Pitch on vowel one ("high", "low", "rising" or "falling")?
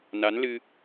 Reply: rising